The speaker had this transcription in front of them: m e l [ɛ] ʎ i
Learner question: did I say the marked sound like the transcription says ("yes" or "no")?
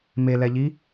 yes